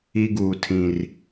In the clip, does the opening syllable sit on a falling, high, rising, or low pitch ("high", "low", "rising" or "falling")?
high